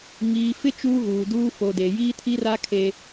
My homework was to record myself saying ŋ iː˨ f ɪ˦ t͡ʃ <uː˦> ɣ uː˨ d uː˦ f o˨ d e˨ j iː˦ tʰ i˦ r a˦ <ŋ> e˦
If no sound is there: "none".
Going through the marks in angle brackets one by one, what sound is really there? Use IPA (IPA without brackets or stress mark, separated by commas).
uː˦, kʰ